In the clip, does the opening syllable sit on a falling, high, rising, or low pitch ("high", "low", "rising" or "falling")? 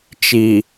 low